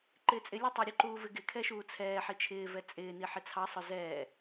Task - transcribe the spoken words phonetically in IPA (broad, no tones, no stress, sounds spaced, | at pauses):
ǃ ɪː t͡sʼ ɪ lʲ u tˤ ɛ ɾʲ ʊ ǃ uː v ɪ ɡ ɪ kʰ ɛ ʃ uː t͡sʰ ɛː ħ i t͡ʃʰ ɪː v ɛ t͡sʼ ɪː n i ħ ɪ t͡sʰ ɑ sˤ ʊ z ɛː